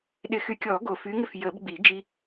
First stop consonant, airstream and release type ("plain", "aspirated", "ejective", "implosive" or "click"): implosive